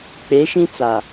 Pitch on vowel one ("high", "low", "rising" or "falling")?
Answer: rising